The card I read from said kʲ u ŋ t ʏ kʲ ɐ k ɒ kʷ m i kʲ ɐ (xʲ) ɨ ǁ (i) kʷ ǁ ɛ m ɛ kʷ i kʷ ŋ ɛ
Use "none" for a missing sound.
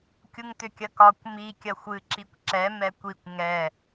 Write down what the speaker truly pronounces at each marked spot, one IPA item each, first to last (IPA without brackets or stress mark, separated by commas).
xʷ, i